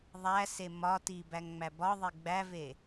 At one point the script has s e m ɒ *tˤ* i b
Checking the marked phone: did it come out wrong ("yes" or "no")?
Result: yes